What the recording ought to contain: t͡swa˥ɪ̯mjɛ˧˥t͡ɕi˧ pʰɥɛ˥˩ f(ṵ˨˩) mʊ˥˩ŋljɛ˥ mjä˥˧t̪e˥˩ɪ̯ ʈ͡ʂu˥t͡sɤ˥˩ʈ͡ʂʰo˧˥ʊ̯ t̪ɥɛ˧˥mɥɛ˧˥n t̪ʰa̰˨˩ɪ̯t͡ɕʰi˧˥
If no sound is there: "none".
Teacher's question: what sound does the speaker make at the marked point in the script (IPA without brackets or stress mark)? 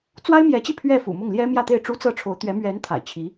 ṵ˨˩